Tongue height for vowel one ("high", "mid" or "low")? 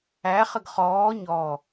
low